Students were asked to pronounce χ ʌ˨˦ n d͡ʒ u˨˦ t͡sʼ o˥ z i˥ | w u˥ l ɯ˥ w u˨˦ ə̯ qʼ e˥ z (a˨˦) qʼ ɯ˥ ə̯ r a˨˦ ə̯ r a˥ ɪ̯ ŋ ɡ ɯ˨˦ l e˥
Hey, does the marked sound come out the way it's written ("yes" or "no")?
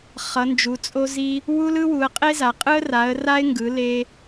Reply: yes